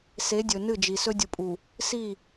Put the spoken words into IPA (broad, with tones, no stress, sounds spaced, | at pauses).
s e˨˦ dʲ ɵ˨ n ɨ˦˨ d͡ʒ i˨ s ɵ˦ dʲ u˨ pʼ u˨ | s i˦˨